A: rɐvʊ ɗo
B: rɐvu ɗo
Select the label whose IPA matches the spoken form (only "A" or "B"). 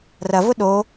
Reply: A